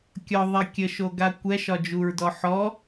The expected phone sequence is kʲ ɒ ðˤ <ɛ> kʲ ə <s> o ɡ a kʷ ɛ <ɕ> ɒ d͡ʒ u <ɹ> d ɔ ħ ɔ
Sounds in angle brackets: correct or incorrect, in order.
correct, incorrect, incorrect, correct

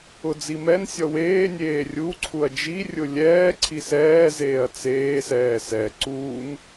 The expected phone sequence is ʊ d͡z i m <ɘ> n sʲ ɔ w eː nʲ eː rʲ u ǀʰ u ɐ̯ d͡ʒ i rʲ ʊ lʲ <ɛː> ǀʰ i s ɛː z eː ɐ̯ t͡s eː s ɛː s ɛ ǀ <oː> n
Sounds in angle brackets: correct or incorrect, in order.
incorrect, correct, incorrect

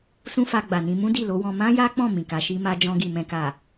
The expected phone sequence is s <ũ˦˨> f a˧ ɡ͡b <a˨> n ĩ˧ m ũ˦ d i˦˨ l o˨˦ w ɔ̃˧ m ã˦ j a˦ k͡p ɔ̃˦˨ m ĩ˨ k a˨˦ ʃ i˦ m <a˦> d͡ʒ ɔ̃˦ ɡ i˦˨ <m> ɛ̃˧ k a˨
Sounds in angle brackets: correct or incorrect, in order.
incorrect, correct, correct, correct

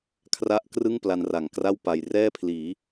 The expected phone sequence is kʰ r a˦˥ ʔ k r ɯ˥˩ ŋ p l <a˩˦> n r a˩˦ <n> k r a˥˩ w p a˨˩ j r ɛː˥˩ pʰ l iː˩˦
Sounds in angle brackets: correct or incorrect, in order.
incorrect, incorrect

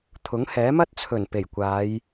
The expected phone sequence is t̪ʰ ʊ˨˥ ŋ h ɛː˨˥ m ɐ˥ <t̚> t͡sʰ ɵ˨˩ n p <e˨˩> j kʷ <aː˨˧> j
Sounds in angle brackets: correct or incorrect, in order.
correct, correct, correct

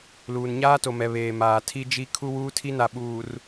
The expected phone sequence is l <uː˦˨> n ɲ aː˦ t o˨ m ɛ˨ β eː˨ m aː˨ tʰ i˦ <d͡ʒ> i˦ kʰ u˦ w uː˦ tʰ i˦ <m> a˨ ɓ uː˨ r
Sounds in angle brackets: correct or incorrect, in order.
incorrect, correct, incorrect

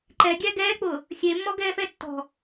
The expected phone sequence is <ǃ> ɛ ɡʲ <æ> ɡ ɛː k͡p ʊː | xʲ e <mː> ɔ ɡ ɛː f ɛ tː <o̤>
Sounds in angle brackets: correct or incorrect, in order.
correct, correct, correct, incorrect

